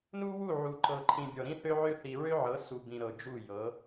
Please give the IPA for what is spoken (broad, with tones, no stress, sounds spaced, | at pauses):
n u˦ w u˦˨ ʕ u˨ ǃ ɤ˨ ǃʰ ĩ˨ bʲ ɔ˨ ɾ ĩ˦ θ ø˦ ʕ ø˦ θ i˨ ɹ ø˦ ʕ ɤ˨˦ s u˨ b ĩ˨ ɾ ɤ˨ d͡ʒ u˦˨ j ɤ˨˦